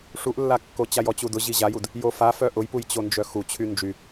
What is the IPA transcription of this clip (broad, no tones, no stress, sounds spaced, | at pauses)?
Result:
ʂ u ʔ lː a kː o t͡ɕ a j ɔ t͡ɕ u d ʊ ʑ i ʑ a j u d | j o f a f œ ʔ ʊ j p u j t͡ɕ o n d͡ʒ œ x u t͡ɕʰ y n d͡ʒ y